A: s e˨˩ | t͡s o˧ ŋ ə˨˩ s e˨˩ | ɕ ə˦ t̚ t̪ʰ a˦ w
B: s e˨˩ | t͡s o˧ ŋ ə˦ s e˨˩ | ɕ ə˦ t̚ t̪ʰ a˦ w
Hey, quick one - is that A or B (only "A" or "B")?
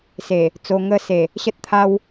B